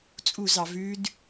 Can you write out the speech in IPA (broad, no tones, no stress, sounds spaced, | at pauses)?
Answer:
t͡sʼ u z ɑ v ʉ d